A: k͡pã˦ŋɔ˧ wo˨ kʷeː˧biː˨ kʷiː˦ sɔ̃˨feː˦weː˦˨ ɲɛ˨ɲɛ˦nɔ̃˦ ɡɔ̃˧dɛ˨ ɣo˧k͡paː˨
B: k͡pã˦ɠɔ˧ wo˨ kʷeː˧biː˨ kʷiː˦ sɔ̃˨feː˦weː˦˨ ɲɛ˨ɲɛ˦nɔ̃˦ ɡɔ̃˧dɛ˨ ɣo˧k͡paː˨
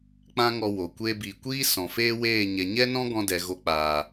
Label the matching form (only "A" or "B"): A